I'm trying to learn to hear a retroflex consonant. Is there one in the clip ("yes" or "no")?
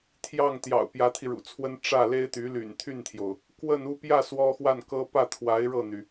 yes